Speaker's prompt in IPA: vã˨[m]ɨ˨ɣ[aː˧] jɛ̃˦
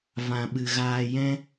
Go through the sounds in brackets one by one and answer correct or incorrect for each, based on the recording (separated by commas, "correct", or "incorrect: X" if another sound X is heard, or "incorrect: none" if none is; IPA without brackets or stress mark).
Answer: incorrect: ɓ, correct